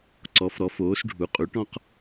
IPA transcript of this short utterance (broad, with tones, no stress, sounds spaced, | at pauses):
ǀ ɔ˩˥ f ɾ ɔ˩˥ f oː˩˥ s ɖʱ u˩˥ qʼ u˩˥ ʈ ɔ̃˥ q